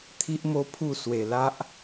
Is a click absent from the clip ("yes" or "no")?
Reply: yes